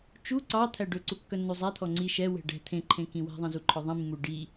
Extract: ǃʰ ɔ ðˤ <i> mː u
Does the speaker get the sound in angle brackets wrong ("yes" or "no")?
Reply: yes